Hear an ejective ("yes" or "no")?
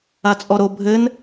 yes